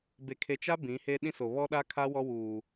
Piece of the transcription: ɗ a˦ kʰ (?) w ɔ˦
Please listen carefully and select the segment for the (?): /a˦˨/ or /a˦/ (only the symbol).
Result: a˦